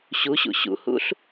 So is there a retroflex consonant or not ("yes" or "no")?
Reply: no